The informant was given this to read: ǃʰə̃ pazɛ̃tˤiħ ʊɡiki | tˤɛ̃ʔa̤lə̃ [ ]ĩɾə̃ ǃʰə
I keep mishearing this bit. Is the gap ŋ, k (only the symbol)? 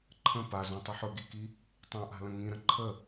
ŋ